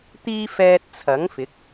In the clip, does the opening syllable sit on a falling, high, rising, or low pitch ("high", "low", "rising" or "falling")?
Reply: high